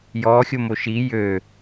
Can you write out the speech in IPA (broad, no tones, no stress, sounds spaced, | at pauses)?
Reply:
j ɔː xʲ o m o ʃ i j ø